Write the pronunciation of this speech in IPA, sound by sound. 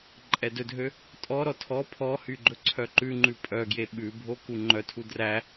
ǃʼɛdɵdʱø | tʼɔɾɔ tʰɔ pʰɔhy ɡ͡ǃɵǀʰœǃʉŋ͡ǃʉ pʼœɡje ɓʉbʱo kuŋ͡ǃœtʰu dræ

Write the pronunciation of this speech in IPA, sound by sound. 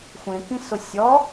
xʷẽkĩsʊ sʲɔ

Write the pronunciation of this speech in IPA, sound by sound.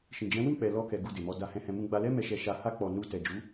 ʃĩ˨d͡ʒɛ̃˨˦wĩ˦˨k͡pɛ˨ lɔ˧kɛ˨ ɡu˧de˨mɔ˧ da˧hɛ̃˧hɛ̃˧ mũ˧ɡ͡ba˧lɛ˦ mɛ˧ʃɛ˧ʃa˧ ha˧ k͡pɔ˨ nu˧ tɛ˨d͡ʒu˨˦

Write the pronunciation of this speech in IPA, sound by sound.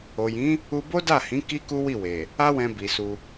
o˨jĩ˨˦ | u˧bo˦da˦˨hĩ˨˦ ki˦ku˦wi˦˨we˨ | a˦wɛ̃˧ bi˨ su˧

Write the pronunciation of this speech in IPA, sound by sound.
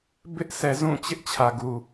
bɪ˦ʔsʰɛ˨zũ˦˨t͡ɕɪ˦ʔ t͡ɕʰä˨ɡu˨

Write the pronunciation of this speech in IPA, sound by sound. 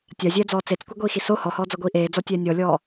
tʲazʲɛːd͡zɔː t͡set͡skʷiɡʷiːxi so hɔhɔːd͡zɔɡʷiː ʔeːd͡zɔtʲɛː nʲɔlʲɔː

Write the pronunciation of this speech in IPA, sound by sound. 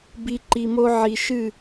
bi˧ ǃi˨mo˧ ʕi˨ ʃɨ˦˨

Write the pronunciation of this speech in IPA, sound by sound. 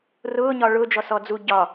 rʊːɲɒ ɭʊːd͡ʒɔsɔ d͡zu ɟɒ

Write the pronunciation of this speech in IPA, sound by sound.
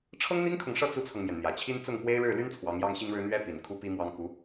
ʈ͡ʂʰɤ˥ŋn̪i˥ŋkʰɤ˨ŋʂɤ˥˩ t͡su˥t͡sʰɤ˨ŋmjɛ˩n n̪jä˨˩t͡ɕʰi˥n t͡sʊ˥˩ŋpwe˥ɪ̯ ɻɻ̩˥˩ly˥n t͡sʰwɑ˧˥ŋjɑ˥ŋɕi˥ŋɻɻ̩˥ n̪ɥɛ˥ pi˨˩n kʰu˥pi˥mwɑ˥ŋ ku˧˥

